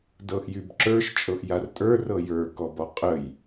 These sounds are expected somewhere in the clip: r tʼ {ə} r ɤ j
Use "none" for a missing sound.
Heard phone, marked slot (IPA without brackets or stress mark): ə˞